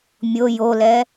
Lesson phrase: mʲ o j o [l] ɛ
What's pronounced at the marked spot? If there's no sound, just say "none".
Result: l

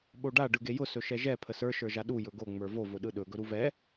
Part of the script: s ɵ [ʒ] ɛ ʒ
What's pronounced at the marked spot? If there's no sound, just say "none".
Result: ʃ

